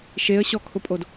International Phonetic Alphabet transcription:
ʃ e ə̯ ɕ ɔ kʰ ʊ pʼ o d

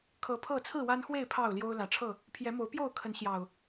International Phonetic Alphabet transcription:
kʰ ɤ˨˦ pʰ ɤ˥˨ t͡sʰ ɹ̩˥˨ w a˦ n x w e˥˨ ɪ̯ pʰ ɑ˥˨ ʊ̯ l j o˦ ʊ̯ l ä˨˦ ʈ͡ʂʰ ɤ˥˨ | pʰ j ɛ˨˦ m o˨˦ ʊ̯ p j o˥˨ ʊ̯ kʰ ə˨˦ n ɕ j ɑ˨˩ ʊ̯

